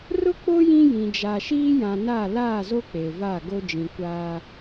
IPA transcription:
r ʊ˦ k͡p o˦ j ĩ˦ j ĩ˨ d͡ʒ a˨ ʃ iː˦ j ã˨ n a˦˨ l aː˦˨ z o˦ k͡p e˨ v a˦˨ ɡ o˦ d͡ʒ ĩ˨ kʷ aː˦

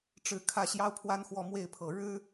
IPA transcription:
ʈ͡ʂ ɻ̩˥˩ kʰ ä˥ ɕ j ɑ˥ ʊ̯ pʰ w a˥ n x w ɔ˥˧ m w e˥˩ ɪ̯ pʰ ɤ˨˩ ɻ ɻ̩˥

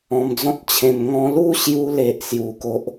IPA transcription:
ɔ̃˧ m d͡z ɔ̃˦ t̚ t͡ɕʰ ẽ˧ m ŋ ɔ̃˧ l u˥˧ ɕ j u˧ l e˨ ʔ s j u˧ k o˦ ʔ

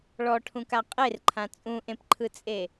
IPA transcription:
ɭ ɔ ʈʰ ũ k a qʼ e r ǃʰ ã t͡sʼ ũ ʔ ẽ p ǃʰ ɯ t͡sʼ e

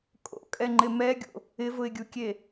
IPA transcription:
kʼ o̰ kʼ ɛ ŋ͡ǃ ɪ m ɛ ɡʲ o̰ | ɪ v ʊ ɪ̯ ɡʲ u kʲ e

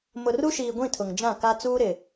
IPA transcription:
m ʊ˨ r u˦ ʃ iː˨ ɡʷ ĩ˦˨ tʰ ʊ˨ ŋ d͡ʒ ã˦˨ k a˦ t͡s uː˦ ɾ ɪ˨

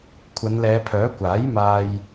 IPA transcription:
kʷʰ ɐ˨˧ n l ɛː˨˧ pʰ œː˨˥ kʷ aː˨˥ j m aː˧ j

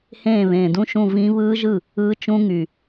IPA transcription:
h ẽː˥˩ β ẽː˨˩ d ũ˥˧ ʃ ũ˥˩ v ĩ˦˥ β ɯː˦˥ ʒ ɯ˥˩ | ɯː˦˥ t͡ʃ ũ˦˥ ŋ y˨˩

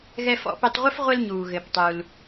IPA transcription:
ɣ ɛ˧ f ɔ̰˧ p ɘ˧ tˤ ʁʷ ɘ˥ f ʁʷ ɘ˧ l ɲ uː˩ ɣ ɘ˩ p tˤ u˩ l

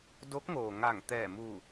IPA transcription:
d o˧˥ k̚ ŋ oː˩ ŋ a˧˩ ŋ t̪ ɛː˧˩ m uː˧˩

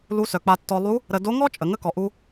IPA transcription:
l u˧˥ s œ˩ k͡p a˧ tː ɔ˧ lˠ u˧˥ | ɾ ə˧ d o˧˥ ŋ ɔ˥ t͡ʃʼ ə˩ ŋ ə˥ k ɔ˩ ʔ u˧

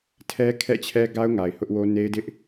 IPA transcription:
tʰ ɛ˦ kʰ ɛ̰˦˨ t͡ɕʰ ɛ˦ ɡ a˦ ʊ̯ ŋ a˨ ɪ̯ h ʊ˦ ʔ w o˦ n e˦ ɪ̯ d ɪ˦ ʔ

